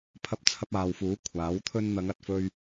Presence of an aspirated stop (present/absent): present